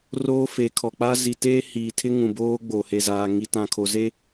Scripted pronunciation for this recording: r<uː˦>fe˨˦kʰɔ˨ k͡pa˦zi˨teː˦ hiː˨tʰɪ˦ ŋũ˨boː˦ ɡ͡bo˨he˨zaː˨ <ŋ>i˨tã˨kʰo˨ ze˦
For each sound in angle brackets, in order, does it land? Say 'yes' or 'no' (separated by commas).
no, yes